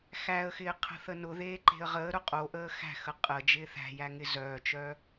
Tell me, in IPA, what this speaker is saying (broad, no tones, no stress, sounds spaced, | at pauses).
x æ ə̯ x ɪː qʰ ə̤ θ ə n ʊ ð eː ǃ e̤ ə̯ ʁ əː ɾ ʊ qʼ o ʔ əː x æ̤ x ə qʼ ə d͡ʒ ɪː θ æ̤ j æ ŋ ɪ z œː t͡ʃ œː